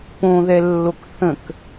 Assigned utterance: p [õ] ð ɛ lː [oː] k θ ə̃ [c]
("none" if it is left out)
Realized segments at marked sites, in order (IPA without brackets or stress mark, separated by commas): õ, o, k